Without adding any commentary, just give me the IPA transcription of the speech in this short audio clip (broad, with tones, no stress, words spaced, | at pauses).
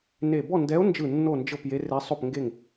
ne˧˩ bɔ˥˨ndɛ˧˥o̯nd͡ʒɯ˧˩ nːo˥˨nd͡ʒɤ˥˨p je˧˥re˧˥ sˤo˥˨pŋɡe˥˨ŋ